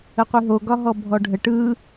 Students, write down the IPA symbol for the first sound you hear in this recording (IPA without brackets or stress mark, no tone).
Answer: ə